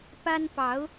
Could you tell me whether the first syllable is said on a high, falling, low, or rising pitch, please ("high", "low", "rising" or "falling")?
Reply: high